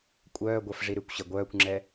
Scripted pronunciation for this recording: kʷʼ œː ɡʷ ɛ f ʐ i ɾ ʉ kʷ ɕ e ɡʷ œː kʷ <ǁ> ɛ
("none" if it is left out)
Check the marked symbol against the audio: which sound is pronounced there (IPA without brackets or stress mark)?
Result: ŋ͡ǁ